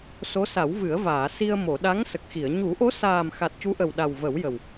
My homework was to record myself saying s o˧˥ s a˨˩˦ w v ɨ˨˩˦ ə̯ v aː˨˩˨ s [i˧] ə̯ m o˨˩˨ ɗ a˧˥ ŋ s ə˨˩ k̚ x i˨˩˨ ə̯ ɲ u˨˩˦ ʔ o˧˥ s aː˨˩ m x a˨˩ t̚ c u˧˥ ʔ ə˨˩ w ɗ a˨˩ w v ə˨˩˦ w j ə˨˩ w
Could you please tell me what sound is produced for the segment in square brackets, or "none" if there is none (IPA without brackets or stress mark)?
i˧